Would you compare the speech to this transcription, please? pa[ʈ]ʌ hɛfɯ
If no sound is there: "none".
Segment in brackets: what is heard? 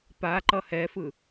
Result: ǃ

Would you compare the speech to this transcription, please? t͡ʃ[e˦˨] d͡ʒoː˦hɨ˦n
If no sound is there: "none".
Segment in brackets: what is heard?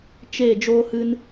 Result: e˦˨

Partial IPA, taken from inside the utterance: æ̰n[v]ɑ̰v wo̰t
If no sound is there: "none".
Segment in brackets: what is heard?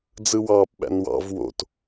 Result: w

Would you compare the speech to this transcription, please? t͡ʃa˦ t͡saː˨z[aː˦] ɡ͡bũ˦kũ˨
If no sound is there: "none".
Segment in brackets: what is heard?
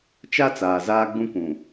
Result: aː˦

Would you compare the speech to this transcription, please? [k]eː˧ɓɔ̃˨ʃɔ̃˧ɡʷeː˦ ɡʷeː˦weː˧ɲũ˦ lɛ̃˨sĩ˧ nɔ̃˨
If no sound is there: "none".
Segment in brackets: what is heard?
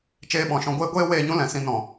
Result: t͡ʃ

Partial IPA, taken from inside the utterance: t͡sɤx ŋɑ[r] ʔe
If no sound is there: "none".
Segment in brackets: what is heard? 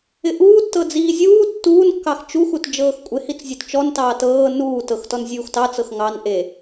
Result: n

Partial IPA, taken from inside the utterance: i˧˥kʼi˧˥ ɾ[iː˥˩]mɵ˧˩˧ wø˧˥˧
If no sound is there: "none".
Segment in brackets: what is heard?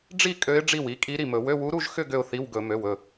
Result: i˥˩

